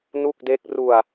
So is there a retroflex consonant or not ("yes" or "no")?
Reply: no